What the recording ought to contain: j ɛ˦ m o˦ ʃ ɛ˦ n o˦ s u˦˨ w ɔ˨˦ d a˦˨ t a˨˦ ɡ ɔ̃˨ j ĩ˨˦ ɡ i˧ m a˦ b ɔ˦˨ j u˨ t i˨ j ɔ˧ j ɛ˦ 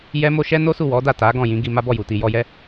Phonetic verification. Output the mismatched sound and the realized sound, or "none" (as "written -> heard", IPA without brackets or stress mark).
ɔ̃˨ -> ɔ̃˦˨